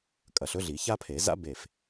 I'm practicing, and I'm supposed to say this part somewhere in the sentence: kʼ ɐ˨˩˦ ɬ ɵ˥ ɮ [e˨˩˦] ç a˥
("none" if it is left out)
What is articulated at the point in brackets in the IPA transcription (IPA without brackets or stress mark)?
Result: i˨˩˦